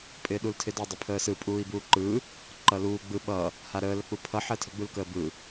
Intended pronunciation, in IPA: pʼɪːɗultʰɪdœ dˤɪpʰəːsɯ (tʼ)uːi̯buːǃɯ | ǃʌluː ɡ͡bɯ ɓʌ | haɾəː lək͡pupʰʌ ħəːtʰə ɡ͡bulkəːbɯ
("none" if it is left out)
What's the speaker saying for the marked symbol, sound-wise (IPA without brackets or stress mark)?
pʼ